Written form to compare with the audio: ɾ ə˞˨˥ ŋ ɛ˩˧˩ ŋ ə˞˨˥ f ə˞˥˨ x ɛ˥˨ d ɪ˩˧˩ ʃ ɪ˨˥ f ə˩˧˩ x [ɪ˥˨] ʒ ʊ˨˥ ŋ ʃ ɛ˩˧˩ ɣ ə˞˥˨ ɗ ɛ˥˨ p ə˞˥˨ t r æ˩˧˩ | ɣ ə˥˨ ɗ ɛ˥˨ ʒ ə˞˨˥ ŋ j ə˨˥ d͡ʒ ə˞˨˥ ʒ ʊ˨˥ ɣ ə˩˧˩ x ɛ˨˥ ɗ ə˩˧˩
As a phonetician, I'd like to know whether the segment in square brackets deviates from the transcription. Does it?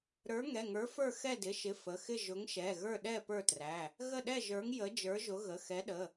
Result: no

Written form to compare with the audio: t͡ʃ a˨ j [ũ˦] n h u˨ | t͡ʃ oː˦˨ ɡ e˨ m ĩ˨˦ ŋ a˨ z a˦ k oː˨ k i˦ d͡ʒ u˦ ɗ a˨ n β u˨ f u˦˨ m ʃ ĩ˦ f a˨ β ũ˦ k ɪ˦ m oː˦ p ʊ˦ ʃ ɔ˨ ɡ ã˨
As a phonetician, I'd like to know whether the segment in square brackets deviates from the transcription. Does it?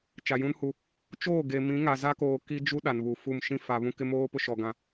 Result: no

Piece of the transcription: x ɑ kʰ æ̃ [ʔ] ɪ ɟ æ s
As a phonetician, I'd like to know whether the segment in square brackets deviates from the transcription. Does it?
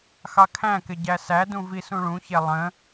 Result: yes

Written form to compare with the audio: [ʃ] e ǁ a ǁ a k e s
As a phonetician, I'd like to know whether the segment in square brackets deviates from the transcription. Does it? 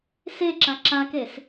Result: yes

